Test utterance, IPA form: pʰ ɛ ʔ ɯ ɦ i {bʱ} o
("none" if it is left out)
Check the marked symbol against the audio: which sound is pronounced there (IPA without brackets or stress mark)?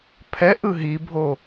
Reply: bʱ